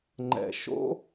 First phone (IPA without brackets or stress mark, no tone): ŋ͡ǃ